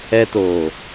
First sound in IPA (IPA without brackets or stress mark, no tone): ɛ